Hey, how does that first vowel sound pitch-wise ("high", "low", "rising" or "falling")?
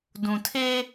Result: low